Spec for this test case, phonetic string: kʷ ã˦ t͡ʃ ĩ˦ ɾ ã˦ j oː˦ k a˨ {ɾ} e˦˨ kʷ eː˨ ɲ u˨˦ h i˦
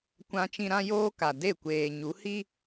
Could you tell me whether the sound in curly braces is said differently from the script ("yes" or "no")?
yes